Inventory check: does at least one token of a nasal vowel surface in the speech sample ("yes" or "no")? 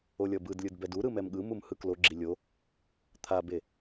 no